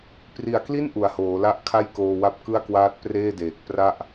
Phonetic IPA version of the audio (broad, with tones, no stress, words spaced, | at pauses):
pri˨˩a̯kli˥˩n ʔu˨˩a̯hoː˩˦la˥˩ʔ kʰa˥˩jkoː˧wa˦˥p̚kɯ˥˩a̯ kwaː˦˥t̚preː˥˩deː˨˩k̚ pra˥˩ʔ